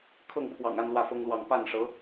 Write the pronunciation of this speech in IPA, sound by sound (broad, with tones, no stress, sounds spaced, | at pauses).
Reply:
kʰ ɤ˥˩ ŋ pʰ w ɑ̰˨˩ ŋ a˥˧ n l w ä˥˩ f ɤ˥ ŋ l w ɑ˥˧ ŋ p a˥˩ n ʂ ɤ˧˥